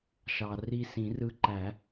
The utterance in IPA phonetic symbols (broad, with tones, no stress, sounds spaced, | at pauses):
ʃ ɑ˨ r i˦˨ s ĩ˨˩˦ r ɯ˨˦ ǃ æ˨˩˦